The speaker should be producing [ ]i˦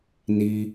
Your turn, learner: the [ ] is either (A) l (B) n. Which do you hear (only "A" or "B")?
B